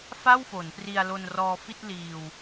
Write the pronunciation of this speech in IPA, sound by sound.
f a˥˩ w f o˩˦ n p r i˧ a̯ l o˧ n r ɔː˧ f i˥˩ t̚ l iː˧ w

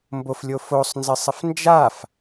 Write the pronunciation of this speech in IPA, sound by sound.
m b o f lʲ o f o sˤ n z ɪ sˤ ɪ f n d͡ʒ a f

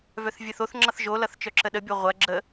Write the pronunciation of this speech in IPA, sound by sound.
v œ θ vʲ ə θ o θ ŋ͡ǁ ʌ θ ʒ o l ʌ θ t͡ʃ œ ǁ ə ɗ ə bʲ o ʁʷ ɐ ɡ͡ǁ ə

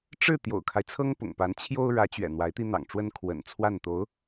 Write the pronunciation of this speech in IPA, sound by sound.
ʈ͡ʂ ɻ̩˥˩ t̪ j o̰˨˩ ʊ̯ kʰ a˦ ɪ̯ t͡sʰ ɤ˥ ŋ p ʊ̰˨˩ ŋ p a˧˥ n t͡ɕʰ j o˥ ʊ̯ ɻ ä˧˥ t͡ɕ ɥ ɛ̰˨˩ n̪ w a˧˥ ɪ̯ t̪ i˥ n̪ ɑ̰˨˩ ŋ ʈ͡ʂ w ə˥ n kʰ w ə̰˨˩ n t͡sʰ w a˥˩ n t̪ o˧˥ ʊ̯

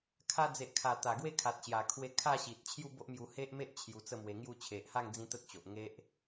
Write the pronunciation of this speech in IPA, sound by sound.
kʰ a˧ d͡z e˨ ʔ kʰ a˨˩ t̪ a˨˩ ɡ w e˥˧ kʰ a˨ t̚ ɕ j a˨˩ kʰ w e˧ kʰ a˥˧ ɕ i˨ t̚ t͡ɕʰ j u˥˧ b o˦ ʔ m j u˧ h e˦ ʔ m e˦ ʔ t͡ɕʰ j u˧ t͡s ə˥˧ m w e˧ ŋ j u˥˧ t͡ɕʰ e˨ ʔ h a˥˧ ŋ d͡z ĩ˦ t̪ ə˦ t̚ t͡ɕ o˨ ʔ ŋ e˦ ʔ

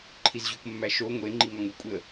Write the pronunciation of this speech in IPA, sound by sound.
ǃʰ i z ʑ u k mː æ ʃ o ŋʷ e ŋ͡ǃ i ŋ ɒ ŋ u kʷʼ e ə̯

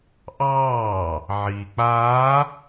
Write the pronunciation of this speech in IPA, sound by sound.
ʔ ɑː | ʕ iː k͡p aː

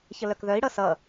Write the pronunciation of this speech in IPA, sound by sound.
ç ə l œ k ð œ i̯ ɽ ʌ s ʌ

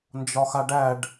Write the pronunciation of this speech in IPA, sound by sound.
n d͡ʒ ɒ x a ɖ æ ɖ

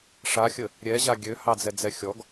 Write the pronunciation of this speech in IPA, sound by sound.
ʂ a xʲ ə | ɾʲ ɛ ʑ a ɡʲ ø h ɑ d͡z ɛ d͡z ɛ xʲ ɔ ɡ

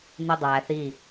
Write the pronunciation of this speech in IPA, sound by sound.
n̪ i dˤ æ θ i

